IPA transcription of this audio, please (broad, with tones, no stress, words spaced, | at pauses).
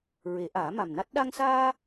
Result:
ɹe˨˩˦ʔaː˨˩˦ma˨˩mna˦˥t̚ ɗa˧ŋsaː˧